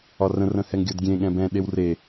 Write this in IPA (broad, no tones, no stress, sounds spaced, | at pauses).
ɒ r ə̃ r ə̃ h ɛ ŋ ɡʲ ɤ d ɡʲ ẽ ɠ ɛ̃ b ɛ̃ ɗ e w r e